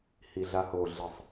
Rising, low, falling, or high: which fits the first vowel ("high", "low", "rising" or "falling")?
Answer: low